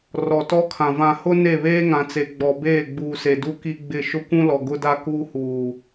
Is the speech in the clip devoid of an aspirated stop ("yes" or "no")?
no